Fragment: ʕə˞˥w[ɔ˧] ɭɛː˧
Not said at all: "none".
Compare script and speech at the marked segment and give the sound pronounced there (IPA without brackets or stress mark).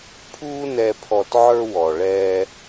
ɔ˩